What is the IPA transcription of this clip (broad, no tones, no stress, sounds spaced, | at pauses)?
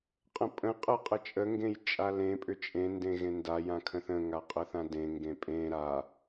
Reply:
qʼ ə̃ pʼ ə̃ qʼ ə qʼ ə t͡ʃʼ ə ŋ ɡ ẽ j t͡ʃʼ a l ẽ pʼ ʏ t͡ʃʼ ẽ n d ẽ ɣ ẽ n d a j ã kʰ ə̃ θ ə̃ ŋ a qʼ ə θ ã d ẽ ŋ ɡ ẽ pʼ ẽ ɾ a